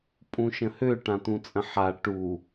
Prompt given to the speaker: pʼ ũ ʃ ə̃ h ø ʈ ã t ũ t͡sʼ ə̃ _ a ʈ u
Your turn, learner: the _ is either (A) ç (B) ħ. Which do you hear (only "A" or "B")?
B